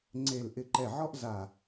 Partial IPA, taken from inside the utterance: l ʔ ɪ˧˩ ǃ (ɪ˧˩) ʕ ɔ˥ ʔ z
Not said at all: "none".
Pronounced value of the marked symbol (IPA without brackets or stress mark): ɛ˧˩